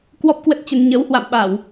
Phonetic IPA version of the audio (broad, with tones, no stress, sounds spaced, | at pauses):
k w ɔ˦˥ p̚ k w ə˦˥ t̚ t͡ɕ ə˧ n ɲ ə˨˦ w h w a̰˧˨ m ɓ a˧˩˨ w